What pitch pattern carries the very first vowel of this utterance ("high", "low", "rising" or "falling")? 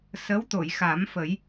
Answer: rising